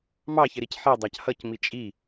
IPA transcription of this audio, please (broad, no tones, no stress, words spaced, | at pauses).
mɑçɪɾic ħidˤɑc hʌcmi t͡ʃʼi